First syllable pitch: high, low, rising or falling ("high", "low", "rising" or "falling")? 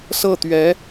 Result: falling